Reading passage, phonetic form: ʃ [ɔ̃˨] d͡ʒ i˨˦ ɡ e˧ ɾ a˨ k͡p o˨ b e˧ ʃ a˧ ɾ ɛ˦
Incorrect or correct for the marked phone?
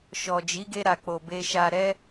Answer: incorrect: ɔ˨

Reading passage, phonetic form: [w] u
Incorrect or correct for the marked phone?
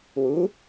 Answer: correct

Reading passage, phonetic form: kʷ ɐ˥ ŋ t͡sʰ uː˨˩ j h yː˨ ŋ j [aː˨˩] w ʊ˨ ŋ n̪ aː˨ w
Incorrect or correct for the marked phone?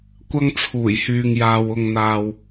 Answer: incorrect: aː˨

